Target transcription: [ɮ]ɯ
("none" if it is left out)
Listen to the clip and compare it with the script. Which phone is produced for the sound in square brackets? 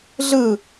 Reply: ɮ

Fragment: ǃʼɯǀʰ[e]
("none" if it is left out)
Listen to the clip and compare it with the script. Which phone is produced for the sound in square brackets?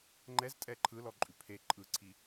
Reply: i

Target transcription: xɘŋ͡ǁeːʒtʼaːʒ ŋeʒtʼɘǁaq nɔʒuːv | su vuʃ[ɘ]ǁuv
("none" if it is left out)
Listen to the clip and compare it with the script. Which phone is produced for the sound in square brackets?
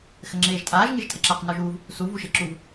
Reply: e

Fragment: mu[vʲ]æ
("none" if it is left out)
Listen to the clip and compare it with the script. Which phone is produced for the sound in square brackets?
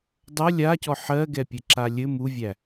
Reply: vʲ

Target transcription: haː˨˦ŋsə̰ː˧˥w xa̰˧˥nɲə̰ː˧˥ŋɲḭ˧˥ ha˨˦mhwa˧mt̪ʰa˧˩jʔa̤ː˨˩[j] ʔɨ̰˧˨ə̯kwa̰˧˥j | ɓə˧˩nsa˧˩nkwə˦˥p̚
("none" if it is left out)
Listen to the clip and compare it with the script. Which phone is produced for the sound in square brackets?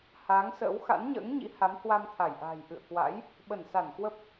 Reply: j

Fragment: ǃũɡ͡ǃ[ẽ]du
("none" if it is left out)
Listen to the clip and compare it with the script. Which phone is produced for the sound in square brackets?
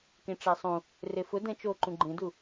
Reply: ẽ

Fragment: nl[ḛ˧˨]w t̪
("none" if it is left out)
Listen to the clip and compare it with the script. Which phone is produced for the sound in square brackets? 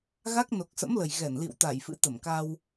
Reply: ḭ˧˨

